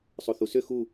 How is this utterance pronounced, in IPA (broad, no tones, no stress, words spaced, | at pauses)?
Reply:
sˤoθusʏ xu